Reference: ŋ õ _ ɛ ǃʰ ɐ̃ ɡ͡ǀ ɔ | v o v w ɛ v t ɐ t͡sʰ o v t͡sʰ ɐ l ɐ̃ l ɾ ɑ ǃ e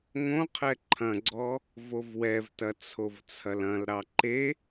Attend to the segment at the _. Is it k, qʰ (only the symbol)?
qʰ